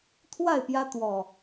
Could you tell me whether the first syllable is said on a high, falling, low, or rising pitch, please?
falling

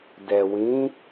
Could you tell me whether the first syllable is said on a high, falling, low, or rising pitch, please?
low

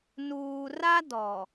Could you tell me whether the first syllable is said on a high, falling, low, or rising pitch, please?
low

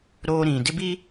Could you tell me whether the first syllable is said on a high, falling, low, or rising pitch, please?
high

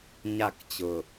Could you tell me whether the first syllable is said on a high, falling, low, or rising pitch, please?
falling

